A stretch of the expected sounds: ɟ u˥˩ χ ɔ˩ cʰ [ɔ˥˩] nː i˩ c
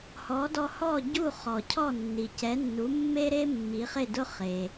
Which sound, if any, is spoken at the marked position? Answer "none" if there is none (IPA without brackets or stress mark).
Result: ɔ˥˩